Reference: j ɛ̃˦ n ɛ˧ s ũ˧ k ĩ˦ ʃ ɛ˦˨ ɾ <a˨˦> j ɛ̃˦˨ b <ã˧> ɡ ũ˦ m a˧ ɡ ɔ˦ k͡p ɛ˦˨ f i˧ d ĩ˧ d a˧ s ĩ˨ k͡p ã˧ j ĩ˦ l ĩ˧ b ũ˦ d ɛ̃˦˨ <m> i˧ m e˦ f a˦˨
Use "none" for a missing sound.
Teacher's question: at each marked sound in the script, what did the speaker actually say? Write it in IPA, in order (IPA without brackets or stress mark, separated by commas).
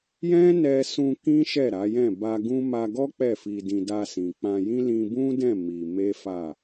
a˨˦, a˧, m